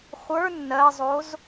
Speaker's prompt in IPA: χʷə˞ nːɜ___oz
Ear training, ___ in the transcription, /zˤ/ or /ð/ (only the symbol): zˤ